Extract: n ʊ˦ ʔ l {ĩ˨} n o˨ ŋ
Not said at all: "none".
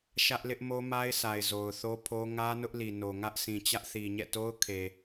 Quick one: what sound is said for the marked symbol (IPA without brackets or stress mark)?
i˨